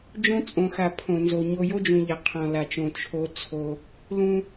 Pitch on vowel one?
high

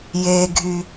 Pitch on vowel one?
low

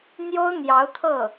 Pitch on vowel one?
high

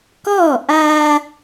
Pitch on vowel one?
falling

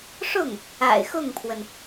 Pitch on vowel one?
falling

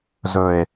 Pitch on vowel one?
low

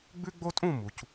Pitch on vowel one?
high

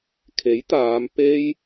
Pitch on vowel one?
rising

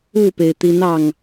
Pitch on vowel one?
falling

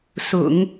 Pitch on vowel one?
low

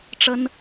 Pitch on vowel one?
high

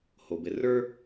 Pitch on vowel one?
low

